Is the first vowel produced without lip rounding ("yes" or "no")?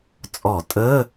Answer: no